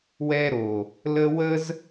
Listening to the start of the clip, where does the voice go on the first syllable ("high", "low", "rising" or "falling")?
high